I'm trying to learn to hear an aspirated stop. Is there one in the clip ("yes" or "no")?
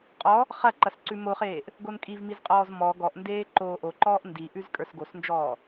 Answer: no